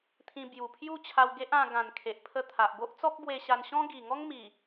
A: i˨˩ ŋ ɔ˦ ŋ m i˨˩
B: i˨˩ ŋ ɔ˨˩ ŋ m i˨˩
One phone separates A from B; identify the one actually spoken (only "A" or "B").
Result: A